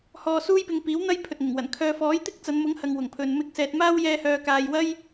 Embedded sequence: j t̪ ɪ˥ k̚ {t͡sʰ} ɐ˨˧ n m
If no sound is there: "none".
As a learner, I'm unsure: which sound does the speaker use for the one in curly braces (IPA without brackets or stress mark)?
t͡s